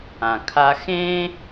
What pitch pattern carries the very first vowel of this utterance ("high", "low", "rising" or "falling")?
low